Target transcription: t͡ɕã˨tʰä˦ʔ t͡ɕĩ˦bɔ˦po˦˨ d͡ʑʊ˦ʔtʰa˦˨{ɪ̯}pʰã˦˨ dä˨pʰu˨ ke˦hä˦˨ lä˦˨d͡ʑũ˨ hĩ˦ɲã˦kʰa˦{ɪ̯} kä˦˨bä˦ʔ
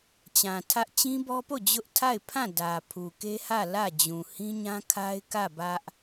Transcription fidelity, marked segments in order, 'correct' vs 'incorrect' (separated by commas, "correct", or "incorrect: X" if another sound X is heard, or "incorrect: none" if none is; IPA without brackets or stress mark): correct, correct